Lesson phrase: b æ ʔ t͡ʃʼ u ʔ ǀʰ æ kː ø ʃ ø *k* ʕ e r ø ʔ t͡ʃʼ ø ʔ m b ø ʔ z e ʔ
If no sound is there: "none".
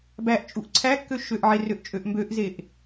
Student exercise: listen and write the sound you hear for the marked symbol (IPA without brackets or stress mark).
ʔ